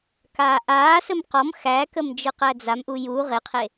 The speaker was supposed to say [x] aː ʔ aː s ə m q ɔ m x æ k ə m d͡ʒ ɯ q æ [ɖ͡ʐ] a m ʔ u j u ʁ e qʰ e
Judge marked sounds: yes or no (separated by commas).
no, no